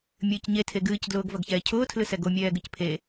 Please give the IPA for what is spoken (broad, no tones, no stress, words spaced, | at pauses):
mʲɨːcɲe tʰeɡɨːcdlʊːɡ vɐɡçɛːcʰʊːtʰlɨ sɛɡomʲɛː ɡɨcpʰe